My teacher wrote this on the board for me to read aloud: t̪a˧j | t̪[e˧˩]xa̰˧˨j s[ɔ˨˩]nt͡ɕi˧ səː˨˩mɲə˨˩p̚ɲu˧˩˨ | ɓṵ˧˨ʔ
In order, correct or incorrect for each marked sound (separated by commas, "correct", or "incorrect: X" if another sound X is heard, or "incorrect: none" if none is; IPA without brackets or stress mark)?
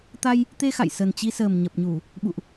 incorrect: e˧, incorrect: ə˨˩